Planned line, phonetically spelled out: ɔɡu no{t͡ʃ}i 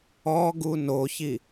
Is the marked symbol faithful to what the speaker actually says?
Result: no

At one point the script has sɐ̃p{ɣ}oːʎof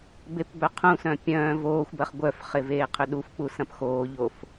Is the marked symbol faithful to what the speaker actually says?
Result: no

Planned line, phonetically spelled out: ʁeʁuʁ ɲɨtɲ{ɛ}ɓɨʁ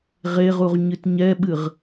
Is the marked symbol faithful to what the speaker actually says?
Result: yes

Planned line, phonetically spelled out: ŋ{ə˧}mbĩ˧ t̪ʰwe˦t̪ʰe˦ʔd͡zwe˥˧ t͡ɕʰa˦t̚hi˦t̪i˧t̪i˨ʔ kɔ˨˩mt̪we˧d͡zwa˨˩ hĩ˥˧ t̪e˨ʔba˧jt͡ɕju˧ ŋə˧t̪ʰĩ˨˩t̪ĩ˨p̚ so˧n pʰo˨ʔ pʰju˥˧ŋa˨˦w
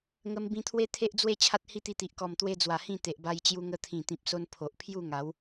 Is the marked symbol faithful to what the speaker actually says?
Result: yes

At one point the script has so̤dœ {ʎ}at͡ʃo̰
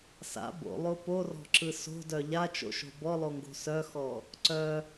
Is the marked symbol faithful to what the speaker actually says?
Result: yes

